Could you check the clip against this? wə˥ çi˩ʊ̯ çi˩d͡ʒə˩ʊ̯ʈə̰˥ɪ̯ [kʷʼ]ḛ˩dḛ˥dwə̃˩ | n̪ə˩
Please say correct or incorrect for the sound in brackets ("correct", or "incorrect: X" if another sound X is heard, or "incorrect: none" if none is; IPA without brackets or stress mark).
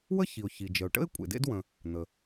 correct